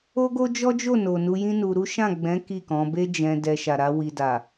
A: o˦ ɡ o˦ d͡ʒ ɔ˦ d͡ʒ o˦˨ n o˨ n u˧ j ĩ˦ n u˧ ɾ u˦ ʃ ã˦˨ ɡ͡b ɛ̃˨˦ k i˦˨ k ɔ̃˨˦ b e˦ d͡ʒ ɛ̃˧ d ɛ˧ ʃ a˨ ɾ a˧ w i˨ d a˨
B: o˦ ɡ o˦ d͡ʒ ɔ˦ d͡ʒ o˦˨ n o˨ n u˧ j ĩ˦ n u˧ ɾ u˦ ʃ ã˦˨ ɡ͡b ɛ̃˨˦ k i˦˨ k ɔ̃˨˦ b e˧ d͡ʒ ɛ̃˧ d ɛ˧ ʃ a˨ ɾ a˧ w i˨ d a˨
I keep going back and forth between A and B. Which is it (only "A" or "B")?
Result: A